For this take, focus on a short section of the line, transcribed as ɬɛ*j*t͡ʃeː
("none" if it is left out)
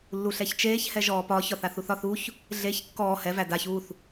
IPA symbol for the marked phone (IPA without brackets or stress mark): ç